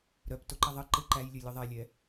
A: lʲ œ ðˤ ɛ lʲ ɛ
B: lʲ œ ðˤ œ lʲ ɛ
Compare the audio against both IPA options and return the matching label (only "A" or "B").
A